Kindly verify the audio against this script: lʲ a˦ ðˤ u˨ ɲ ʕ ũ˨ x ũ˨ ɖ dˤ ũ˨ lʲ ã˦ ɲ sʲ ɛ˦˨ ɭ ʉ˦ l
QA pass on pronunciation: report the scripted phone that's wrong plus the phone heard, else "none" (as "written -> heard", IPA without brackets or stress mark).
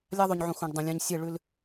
none